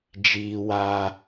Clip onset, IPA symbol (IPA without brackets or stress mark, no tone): d͡ʒ